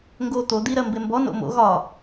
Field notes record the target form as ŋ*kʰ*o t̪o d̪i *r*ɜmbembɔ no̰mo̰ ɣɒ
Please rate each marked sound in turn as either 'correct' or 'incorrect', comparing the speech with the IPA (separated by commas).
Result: incorrect, incorrect